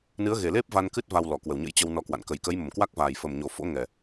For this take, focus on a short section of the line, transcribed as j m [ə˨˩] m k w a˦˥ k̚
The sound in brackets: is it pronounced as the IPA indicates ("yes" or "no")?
no